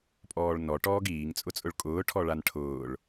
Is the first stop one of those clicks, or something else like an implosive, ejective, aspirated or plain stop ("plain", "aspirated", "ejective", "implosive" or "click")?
ejective